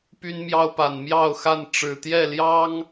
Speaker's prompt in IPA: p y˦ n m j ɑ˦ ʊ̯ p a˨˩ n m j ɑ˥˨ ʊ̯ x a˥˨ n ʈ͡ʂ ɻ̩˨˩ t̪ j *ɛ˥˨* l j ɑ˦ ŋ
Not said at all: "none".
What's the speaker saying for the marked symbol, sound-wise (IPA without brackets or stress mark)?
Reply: ɛ˥˨